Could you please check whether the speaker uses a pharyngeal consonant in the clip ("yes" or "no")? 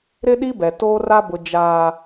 no